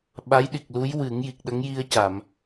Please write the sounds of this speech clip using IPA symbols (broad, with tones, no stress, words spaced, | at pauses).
ɓa˧˥jɗi˨˩k̚lu˧˥jwɨ˨˩˦ŋ ji˨˩k̚ɗə˧˥ŋji˧ə̯ ca˨˩˨m